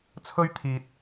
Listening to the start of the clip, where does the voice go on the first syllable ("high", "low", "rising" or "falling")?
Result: high